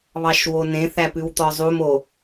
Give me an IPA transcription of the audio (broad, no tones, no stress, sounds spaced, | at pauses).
β ɑ ʃ w o n ẽ θ æ p ʉ w t̪ ɔ zˤ u m o